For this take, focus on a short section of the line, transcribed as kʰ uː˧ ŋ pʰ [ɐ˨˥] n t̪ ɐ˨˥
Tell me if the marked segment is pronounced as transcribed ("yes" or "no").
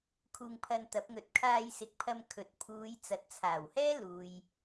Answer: no